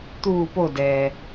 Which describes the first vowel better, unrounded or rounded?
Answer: rounded